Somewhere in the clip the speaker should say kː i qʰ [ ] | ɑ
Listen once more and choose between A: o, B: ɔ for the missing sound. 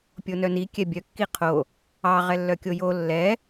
A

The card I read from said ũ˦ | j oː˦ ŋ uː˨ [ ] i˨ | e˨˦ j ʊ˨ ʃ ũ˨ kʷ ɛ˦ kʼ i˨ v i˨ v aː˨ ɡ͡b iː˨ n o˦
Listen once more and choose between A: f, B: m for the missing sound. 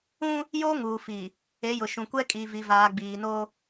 A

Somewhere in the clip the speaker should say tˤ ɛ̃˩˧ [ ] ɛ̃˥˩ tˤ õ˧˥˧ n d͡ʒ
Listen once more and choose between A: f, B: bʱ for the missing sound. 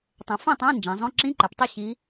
A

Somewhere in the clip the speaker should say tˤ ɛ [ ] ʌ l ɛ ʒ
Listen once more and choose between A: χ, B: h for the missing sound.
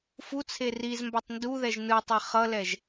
A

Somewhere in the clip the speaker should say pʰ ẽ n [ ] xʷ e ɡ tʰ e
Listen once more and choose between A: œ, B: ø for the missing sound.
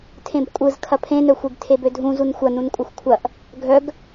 A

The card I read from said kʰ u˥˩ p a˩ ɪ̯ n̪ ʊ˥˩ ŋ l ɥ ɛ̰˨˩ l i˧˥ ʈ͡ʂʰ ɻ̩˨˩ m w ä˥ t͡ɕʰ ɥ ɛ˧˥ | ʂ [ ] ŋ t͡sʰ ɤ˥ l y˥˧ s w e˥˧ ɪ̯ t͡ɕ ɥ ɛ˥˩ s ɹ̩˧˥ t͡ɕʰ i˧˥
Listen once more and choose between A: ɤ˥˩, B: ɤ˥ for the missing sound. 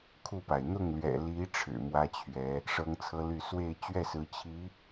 B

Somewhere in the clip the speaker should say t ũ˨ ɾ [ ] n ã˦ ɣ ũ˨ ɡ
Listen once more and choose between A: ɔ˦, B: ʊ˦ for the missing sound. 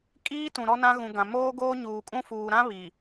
A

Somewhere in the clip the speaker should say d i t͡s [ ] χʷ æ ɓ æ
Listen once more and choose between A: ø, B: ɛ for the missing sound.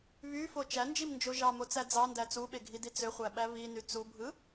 A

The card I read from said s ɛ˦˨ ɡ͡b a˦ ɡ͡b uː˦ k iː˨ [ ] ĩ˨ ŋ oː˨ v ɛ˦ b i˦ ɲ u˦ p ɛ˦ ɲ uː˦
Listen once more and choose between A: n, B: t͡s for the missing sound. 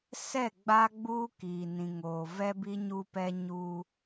A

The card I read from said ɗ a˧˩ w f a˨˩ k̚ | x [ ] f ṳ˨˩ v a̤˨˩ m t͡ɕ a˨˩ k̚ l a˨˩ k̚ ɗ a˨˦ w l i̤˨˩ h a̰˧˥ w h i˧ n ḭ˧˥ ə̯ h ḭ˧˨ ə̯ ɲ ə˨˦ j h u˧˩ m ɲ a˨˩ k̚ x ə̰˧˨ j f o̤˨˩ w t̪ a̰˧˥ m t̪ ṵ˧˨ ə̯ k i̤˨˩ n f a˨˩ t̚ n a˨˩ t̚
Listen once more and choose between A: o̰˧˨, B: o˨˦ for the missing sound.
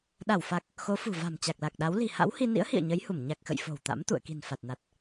B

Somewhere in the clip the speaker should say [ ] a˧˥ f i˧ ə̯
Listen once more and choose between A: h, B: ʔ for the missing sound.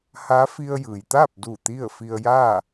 A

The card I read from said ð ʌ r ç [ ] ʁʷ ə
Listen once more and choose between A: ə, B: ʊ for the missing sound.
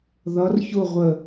B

